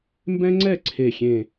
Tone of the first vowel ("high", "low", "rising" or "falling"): high